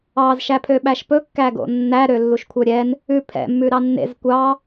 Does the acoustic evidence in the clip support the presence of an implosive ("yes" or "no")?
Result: yes